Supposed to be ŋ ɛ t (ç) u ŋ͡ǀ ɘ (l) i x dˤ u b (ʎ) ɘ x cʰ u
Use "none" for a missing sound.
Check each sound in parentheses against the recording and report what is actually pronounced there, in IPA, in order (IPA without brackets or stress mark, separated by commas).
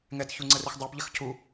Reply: ç, r, ʎ